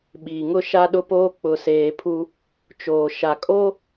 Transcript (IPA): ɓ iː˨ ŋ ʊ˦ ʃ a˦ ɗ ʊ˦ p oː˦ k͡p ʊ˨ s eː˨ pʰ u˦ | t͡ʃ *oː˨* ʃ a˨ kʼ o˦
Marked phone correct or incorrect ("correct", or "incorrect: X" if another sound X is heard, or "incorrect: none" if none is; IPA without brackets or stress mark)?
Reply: correct